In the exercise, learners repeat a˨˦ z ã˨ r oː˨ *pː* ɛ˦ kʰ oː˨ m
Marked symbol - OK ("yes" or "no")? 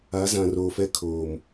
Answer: no